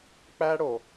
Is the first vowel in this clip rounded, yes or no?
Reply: no